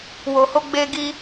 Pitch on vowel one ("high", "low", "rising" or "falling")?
low